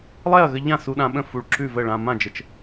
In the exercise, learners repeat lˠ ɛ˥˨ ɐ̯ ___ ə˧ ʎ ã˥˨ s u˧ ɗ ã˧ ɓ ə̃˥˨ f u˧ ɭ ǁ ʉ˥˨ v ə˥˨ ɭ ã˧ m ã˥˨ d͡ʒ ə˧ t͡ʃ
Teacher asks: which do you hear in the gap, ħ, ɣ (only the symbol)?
ɣ